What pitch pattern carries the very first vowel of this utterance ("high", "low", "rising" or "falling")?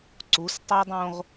rising